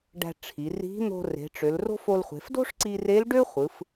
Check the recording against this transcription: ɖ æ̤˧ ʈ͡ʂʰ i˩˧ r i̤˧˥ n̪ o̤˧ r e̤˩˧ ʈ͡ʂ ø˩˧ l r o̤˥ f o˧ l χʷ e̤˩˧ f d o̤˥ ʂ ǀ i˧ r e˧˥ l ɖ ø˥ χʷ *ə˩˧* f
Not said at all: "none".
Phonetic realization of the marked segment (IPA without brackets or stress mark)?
ɯ˩˧